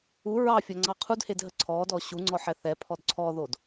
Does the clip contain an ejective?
no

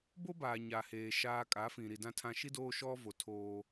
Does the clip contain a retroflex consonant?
no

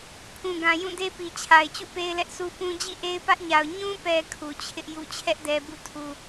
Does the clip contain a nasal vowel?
yes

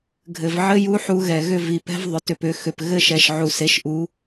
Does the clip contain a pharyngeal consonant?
yes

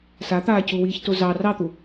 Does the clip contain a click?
no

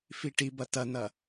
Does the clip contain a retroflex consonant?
yes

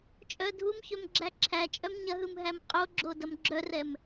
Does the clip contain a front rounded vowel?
yes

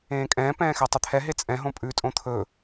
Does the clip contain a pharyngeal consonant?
no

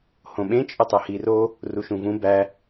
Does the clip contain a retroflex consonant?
no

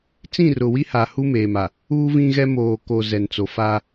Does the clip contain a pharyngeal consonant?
no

